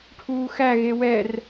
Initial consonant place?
retroflex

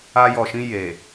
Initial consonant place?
palatal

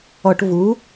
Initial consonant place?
retroflex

